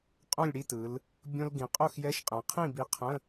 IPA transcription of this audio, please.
qʼ õ˥˨ lʲ ɽ i˥˨ t ɯ˩˧ l | bʲ õ˧ l ɡ ĩ˩˧ qʼ o˥˨ x j ɛ˧˥˧ ʃ qʼ ɛ̃˩˧ qʰ ĩ˥˨ b i˧ qʰ ə̃˧˥˧

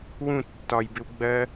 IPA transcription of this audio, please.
w ũ tː ɒ j b ɪ w ɡ͡b ɜ

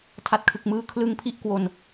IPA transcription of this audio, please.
tʰ a˨˩ t̚ kʰ ɯ˨˩ k̚ m ɯː˧ kʰ l ɯ˦˥ ŋ pʰ i˥˩ ʔ k w o˧ n

